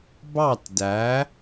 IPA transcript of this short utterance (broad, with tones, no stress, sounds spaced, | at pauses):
b ɑ˥˩ t d æ˩˥